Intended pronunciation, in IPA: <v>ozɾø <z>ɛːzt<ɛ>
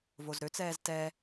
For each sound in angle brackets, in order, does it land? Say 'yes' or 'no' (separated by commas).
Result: yes, no, yes